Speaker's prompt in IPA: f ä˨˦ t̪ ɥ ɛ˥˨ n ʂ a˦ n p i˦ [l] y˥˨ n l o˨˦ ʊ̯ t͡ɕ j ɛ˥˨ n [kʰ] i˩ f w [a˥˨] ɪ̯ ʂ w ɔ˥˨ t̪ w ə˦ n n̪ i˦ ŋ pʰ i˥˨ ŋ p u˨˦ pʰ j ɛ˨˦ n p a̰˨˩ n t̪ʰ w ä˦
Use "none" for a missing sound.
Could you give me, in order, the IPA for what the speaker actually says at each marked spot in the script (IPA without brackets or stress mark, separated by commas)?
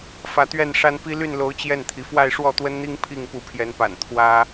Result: l, t̪ʰ, a˥˨